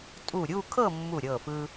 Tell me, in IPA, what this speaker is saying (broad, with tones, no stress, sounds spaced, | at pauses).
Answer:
tʼ u˧˩ ɾʲ u˥˧ kʰ ɤ˥˧ mː u˧˩ ɾʲ ɤ˧˩ f ɯ˧